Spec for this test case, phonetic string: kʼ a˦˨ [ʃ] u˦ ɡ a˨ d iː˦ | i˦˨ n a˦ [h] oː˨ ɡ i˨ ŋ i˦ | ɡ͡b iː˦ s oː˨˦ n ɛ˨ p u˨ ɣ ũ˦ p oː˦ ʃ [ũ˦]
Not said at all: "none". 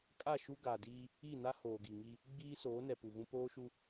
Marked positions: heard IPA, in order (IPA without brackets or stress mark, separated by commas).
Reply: ʃ, h, u˦